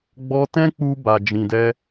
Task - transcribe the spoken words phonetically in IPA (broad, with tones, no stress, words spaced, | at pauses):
ɡ͡bɔ˧tɛ̃˦k͡pu˧ ba˨d͡ʒĩ˨dɛ˧